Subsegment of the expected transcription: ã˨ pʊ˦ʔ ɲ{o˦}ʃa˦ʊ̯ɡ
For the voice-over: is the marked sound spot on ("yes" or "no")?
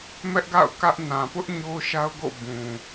yes